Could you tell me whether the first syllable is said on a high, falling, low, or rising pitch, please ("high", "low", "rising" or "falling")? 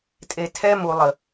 low